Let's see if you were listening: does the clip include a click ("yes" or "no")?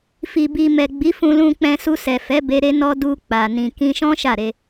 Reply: no